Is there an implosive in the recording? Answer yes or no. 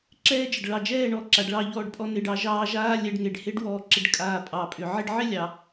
no